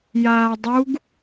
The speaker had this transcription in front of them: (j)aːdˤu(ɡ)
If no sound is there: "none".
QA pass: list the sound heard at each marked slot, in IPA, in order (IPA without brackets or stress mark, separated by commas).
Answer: j, ɡ